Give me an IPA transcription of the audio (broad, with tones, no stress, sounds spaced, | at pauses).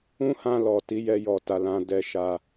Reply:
ũ˦ h ã˧ l ɔ˨ t i˨˦ j ɛ˧ j ɔ˨ t a˨ l ã˨ d ɛ˨ ʃ a˨